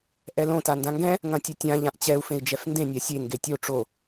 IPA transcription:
ʔɛlõ tandãŋɡɛ̃ | ŋɐ̃tʲɐtʲã ʎãʔt͡ɕɛu̯ fẽi̯d͡ʒɛfndẽ nʲasʲe ŋɡetʲo ʈ͡ʂo

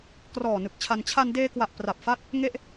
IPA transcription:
krɔː˨˩ nɯ˨˩k̚t͡ɕʰa˧n t͡ɕʰa˧ndeː˧kwa˨˩ʔ pra˨˩p̚fa˦˥t̚ | ŋe˥˩ʔ

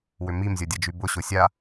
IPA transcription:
wʏmim zʲɔdʲɐd͡ʒybʊ ɕʊsʲa

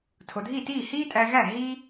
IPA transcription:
tʰo˩dʱi˥˩tiː˥˩ hiː˥tʼæ˧ɣæ˥˩ ɦiː˥

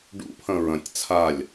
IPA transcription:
ɖṵpʰɐ̃ ɹɐ̃tʲ t͡sʰalʲ

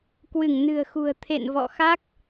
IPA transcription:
kwɨ˧˩ŋnɨ̤˨˩ə̯xṳ˨˩ə̯ t̪ʰḛ˧˨nvɔ̰˧˨xa˦˥k̚

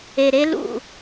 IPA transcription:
e˨ɾe˦lṵ˦˨

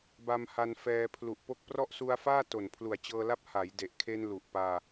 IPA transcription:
ba˧mha˧nfɛː˧ pʰlu˨˩ʔpo˦˥k̚prɔ˥˩ʔ su˧a̯faː˥˩ to˨˩npʰlu˨˩a̯t͡ɕɤː˧la˦˥p̚ ha˩˦jde˨˩ʔkʰe˧n lu˨˩ʔpaː˧

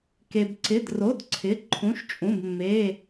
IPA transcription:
ke˧bǀɪ˧˥˧dro˧˥˧d ǀʰɪ˧˥˧ǃʰũ˧˥˧ʃt͡ʃʼũ˧˥˧bmːe˧˥˧

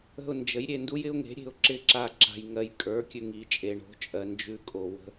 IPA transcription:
ə̤˦˨ʊ̯nd͡ʒə˩˥jɾʲe˨ ndu˦jɪ˦ʊ̯ŋe̤˩˥ ɾʲe̤˩˥ʊ̯ǁɪ˦ǁa˦˨ǁa̤˨j ŋɜ˨jkʼə˞˩˥kʲʉ˨ ŋi˩˥t͡ʃʼe˨ɳo̤˩˥t͡ʃʼɜ˨ nd͡ʒʉ˦kʼo˨ wə̤˦

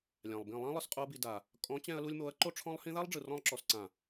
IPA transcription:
lʲã˨lˠbĩ˦˨ lˠã˦ lˠɯ˧sqʼo˦ɐ̯bi˧ da˨ | kʼɔ̃˨˦t͡ɕɛ̃˧ɐ̯lu˧lʲmo˨˦ɐ̯ ǃo˦ʈ͡ʂʰɔ̃˦lˠhĩ˦ ða˦lˠɖ͡ʐɯ˨ rɔ̃˧lˠǁɔ˨sǀã˨

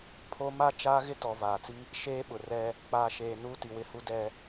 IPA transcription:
pʰo˦ ma˦ t͡ʃaː˦ɣɪ˦tɔ˨ vaː˨t͡si˦ | ʃeː˦ɓʊ˨ rɛ˦ | k͡paː˨ʃeː˨ nuː˦ti˨wɪ˦hu˦ dɛ˦

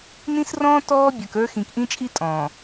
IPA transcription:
nĩ˦srɔ̃ː˦ tɔː˦bʲə˞˨kə˞˦ xĩ˨kʔĩ˦t͡ʃʼi˦ tʼɔ̃ː˨

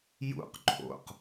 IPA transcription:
jṵq ǃʰo̰q

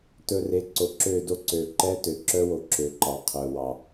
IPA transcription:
tɵ˧re˨˦ǀo˨ ǁø˦˨do˦ǀø˨ ǃɛ˦tø˨ǁœ˦wo˨ ǁø˨ǃɑ˨ qʰœ˨wɑ˨

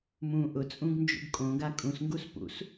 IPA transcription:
mũ ʔʊt͡sʼũɡnd͡ʒṵɡ kʼõɡa kʼũsŋɡus pṵs

